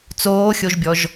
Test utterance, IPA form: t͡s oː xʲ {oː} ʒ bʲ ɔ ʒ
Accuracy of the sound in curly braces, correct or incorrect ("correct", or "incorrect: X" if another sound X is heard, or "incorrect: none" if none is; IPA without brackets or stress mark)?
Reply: incorrect: o